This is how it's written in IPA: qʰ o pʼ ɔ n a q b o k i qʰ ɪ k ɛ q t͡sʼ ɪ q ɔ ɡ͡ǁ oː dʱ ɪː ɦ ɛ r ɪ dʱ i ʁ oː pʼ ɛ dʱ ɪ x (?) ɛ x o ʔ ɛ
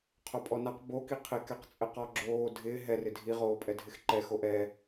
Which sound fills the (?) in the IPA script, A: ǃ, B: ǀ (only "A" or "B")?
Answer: A